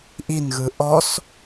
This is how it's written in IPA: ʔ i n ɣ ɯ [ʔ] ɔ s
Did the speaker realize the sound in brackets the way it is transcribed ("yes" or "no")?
yes